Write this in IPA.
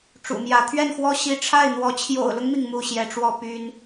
ʈ͡ʂ ṵ˨˩ m j ä˧˥ t̪ʰ ɥ ɛ˥˩ n x w ɔ˥ ɕ i˧˥ ʈ͡ʂʰ a˥˩ ɪ̯ n̪ w ɔ˧˥ t͡ɕʰ j o̰˨˩ ʊ̯ l ʊ˦ ŋ m i˩ ŋ m u˥˩ ɕ j ɛ˧˥ ʈ͡ʂ w ɔ˥˩ p y˥ n

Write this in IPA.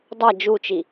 dˤ a d͡ʒ u t͡ʃ i

